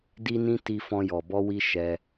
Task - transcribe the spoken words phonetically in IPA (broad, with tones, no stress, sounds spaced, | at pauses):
d i˧ n ĩ˧ t i˧ f ɔ̃˧ j ɔ˨ b ɔ˧ w i˧ ʃ ɛ˧